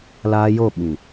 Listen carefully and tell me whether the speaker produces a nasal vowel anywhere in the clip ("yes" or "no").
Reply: yes